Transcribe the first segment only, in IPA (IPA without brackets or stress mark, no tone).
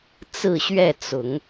t͡s